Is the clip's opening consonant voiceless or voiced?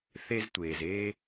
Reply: voiceless